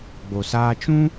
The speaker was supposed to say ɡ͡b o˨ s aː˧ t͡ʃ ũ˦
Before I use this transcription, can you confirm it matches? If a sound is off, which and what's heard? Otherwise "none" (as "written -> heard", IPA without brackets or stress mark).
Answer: none